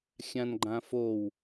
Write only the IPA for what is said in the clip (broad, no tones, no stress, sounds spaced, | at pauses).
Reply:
xʲ ã n ɡ͡ǃ ã f o w